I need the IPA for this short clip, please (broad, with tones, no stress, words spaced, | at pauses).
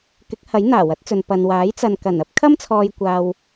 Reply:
kɪ˨˥k̚hɐ˨˥j n̪aː˨˩wɐ˨˥t̚t͡sɵ˨n pɐ˨n waː˨˥jt͡sɐ˨nkɐ˨˩nɐ˨˥p̚ kʰɐ˥mt͡sʰɔː˨j kʷaː˨w